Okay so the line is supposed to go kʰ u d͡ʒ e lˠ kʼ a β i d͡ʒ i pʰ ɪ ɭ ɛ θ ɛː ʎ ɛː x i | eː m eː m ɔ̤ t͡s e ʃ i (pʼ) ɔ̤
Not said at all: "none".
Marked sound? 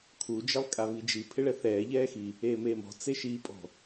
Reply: pʼ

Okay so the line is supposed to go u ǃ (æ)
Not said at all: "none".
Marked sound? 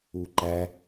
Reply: æ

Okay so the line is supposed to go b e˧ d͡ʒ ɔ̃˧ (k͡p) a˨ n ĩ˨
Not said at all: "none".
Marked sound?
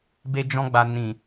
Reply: ɡ͡b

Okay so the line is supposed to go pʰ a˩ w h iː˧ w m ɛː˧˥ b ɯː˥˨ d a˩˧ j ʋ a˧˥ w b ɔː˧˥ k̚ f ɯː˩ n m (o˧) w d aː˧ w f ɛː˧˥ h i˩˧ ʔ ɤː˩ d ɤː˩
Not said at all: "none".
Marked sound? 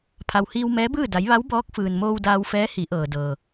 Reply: oː˧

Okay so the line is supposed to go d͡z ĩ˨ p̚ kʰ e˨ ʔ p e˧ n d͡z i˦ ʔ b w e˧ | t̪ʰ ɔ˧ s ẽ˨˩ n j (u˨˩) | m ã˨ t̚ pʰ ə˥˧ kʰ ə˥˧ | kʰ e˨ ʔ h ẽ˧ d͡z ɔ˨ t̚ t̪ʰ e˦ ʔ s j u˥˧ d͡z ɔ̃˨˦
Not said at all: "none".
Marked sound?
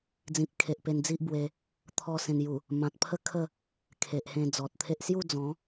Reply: u˨˩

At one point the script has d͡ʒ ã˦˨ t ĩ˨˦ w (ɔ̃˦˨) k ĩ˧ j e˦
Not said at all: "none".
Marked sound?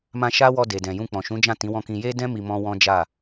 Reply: ɔ̃˦˨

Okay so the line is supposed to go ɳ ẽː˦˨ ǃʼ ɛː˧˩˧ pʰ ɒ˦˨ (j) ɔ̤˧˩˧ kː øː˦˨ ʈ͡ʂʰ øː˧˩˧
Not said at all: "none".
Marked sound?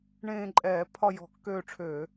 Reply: j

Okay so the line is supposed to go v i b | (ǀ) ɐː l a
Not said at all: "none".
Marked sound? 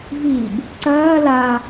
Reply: ǀ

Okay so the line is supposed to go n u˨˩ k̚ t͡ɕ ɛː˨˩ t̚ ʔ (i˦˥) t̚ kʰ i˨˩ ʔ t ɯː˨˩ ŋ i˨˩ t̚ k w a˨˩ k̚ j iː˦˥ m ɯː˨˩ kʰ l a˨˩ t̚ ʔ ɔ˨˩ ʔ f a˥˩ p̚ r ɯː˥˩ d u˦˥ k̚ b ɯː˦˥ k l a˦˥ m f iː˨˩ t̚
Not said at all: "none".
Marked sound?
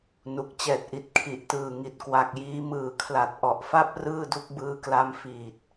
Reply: i˨˩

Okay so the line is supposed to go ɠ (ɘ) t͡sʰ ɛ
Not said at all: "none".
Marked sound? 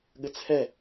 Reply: ɘ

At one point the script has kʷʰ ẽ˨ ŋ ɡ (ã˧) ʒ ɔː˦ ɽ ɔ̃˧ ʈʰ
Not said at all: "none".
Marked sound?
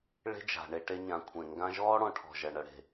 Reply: ã˧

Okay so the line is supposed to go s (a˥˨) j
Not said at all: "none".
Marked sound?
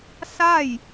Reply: a˥˨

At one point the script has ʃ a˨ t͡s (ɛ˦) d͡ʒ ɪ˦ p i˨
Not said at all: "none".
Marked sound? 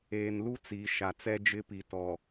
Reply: ɛ˦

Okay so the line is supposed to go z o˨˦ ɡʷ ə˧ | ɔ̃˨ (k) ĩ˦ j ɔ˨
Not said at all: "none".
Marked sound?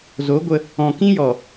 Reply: k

